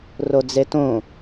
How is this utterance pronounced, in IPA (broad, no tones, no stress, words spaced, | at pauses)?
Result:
rod͡zetõ